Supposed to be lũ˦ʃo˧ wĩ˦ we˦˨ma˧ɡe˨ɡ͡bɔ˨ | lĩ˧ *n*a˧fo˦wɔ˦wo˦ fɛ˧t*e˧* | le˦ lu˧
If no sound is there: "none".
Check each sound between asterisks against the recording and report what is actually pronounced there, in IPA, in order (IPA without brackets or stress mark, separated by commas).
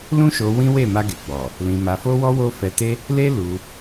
m, e˦